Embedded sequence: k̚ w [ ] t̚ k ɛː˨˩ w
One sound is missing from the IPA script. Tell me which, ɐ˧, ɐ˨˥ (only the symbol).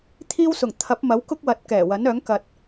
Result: ɐ˨˥